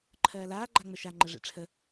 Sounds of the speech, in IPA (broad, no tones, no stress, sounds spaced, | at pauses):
ǃʰ ɜː l aː ɡ͡ǃ a ŋ͡m ə ʃ a ŋ͡ǃ ə ʐ ḛ ʈ͡ʂʰ ə